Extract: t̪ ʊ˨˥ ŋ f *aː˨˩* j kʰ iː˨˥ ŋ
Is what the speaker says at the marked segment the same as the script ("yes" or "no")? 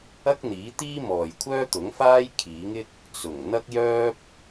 no